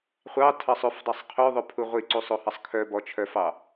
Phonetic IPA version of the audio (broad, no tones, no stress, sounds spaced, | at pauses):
χʷ ɑ tʰ ɑ sˤ ɵ f dˤ i sˤ qʰ ø ðˤ ɵ pʰ u ʁʷ i ǀ u sˤ o h ɑ sˤ kʰ œ b ɔ t͡ʃʰ œ f ɑ